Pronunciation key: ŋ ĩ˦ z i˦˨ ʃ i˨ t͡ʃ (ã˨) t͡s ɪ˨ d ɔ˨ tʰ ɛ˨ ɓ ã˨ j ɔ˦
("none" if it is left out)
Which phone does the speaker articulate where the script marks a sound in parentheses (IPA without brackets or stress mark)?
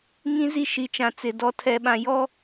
ã˨